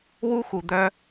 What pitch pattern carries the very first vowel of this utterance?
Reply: high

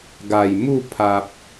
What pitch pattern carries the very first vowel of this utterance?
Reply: low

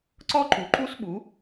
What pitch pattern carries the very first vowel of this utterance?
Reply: high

